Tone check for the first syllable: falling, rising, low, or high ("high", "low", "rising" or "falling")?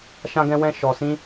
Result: high